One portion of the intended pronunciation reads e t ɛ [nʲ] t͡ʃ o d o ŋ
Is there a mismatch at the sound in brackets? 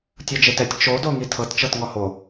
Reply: yes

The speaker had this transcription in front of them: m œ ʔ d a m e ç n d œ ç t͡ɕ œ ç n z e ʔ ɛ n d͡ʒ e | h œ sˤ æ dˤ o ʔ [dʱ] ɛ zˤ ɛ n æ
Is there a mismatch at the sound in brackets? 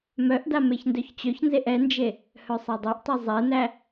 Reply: yes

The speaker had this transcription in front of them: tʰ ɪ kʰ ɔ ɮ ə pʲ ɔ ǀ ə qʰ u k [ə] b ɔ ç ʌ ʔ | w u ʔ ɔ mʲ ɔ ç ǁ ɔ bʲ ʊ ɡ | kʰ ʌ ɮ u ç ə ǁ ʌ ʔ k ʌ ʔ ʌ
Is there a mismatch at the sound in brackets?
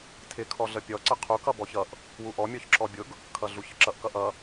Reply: yes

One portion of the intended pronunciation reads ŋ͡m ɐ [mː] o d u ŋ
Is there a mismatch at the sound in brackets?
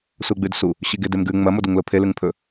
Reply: yes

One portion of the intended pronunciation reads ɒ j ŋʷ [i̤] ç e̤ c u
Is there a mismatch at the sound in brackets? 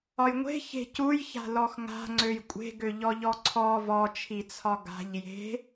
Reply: yes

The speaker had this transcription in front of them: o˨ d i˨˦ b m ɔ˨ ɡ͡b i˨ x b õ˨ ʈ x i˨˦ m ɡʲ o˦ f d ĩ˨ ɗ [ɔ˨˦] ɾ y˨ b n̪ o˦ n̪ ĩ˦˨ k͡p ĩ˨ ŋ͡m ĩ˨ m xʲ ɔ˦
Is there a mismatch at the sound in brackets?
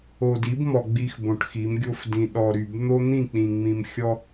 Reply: yes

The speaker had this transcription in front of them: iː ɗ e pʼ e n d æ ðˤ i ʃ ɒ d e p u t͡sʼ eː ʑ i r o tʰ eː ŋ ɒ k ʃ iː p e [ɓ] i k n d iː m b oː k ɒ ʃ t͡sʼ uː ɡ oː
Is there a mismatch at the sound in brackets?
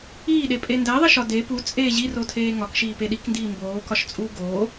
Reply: yes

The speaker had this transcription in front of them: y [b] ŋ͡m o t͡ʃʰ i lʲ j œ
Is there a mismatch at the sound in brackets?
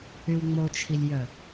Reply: yes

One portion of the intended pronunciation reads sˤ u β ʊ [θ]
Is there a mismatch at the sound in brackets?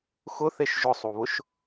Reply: yes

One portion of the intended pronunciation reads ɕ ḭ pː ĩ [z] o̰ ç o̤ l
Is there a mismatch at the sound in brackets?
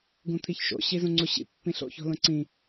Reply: yes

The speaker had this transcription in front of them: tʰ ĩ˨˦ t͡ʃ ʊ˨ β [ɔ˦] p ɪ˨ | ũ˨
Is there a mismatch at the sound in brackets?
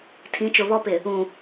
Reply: no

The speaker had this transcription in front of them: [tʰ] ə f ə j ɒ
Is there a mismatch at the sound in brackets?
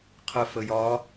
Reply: yes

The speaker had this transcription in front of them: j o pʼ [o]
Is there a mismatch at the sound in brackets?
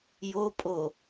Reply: no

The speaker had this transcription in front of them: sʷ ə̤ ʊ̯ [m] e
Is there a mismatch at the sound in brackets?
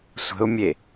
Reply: yes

